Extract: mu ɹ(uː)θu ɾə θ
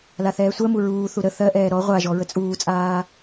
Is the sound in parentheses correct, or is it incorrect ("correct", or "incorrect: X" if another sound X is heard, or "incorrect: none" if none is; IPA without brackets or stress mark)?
correct